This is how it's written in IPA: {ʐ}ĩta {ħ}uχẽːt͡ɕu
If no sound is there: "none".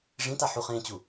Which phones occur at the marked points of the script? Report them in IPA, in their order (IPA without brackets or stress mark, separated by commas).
ʐ, ħ